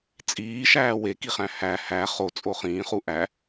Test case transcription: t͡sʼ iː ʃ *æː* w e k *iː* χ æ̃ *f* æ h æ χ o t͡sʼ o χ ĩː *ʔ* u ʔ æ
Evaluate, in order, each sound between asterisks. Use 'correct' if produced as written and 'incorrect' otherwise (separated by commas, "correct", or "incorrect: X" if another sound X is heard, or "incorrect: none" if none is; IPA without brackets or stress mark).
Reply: correct, incorrect: i, incorrect: h, incorrect: χ